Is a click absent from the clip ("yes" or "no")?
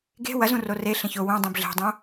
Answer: yes